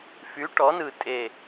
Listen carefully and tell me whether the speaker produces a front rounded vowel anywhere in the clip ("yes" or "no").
yes